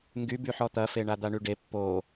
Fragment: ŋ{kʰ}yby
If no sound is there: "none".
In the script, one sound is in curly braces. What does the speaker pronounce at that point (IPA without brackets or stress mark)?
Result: ɡ